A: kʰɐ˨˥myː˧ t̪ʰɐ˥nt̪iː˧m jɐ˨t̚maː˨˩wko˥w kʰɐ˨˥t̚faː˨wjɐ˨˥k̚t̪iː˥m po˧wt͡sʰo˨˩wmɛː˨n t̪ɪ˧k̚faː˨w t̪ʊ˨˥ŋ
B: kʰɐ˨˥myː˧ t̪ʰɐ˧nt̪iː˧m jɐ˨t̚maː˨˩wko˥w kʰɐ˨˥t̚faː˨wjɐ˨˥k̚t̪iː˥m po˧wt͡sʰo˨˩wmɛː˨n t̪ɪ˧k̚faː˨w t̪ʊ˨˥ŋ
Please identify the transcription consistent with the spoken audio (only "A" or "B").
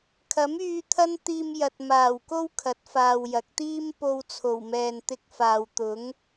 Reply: A